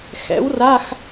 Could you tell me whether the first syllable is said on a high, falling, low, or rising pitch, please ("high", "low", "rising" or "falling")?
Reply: rising